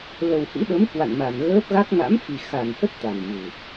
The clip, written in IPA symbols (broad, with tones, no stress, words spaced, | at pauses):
lə˨˩whḭ˧˥ɗə˨˦m kwa̰˧˨nma˨˩nɣəː˦˥p̚ɣa˦˥k̚ ŋa̰˧˥mfi˨˩ xa˨˩nhə˦˥t̚ t̪a˨˩nvɨ˨˩